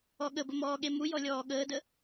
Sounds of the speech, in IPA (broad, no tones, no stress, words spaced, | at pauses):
ɔɠəbə mɔːɠemujɔ lʲɔːɠəːdə